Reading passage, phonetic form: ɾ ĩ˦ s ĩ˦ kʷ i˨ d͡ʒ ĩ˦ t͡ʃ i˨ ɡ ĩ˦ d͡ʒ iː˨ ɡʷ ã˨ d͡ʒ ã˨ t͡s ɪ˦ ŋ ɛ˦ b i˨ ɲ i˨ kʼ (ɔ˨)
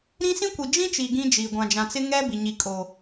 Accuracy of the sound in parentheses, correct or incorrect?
incorrect